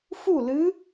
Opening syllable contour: falling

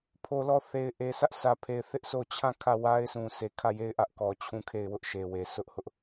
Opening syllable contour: low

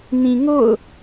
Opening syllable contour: low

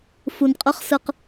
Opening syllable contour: low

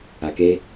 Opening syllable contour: low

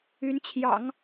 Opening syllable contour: rising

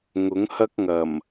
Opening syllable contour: rising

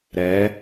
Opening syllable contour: rising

